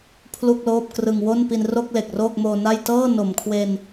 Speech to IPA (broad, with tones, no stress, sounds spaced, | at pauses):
pʰ l u˥˩ k̚ l oː˥˩ p̚ k r ɯ˧ ŋ w o˥˩ n p i˧ n r o˥˩ k̚ l e˨˩ k̚ r oː˥˩ k̚ m oː˧ n a˥˩ j t ɤː˥˩ n o˨˩ m kʰ w e˧ n